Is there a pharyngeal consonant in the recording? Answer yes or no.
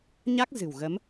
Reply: no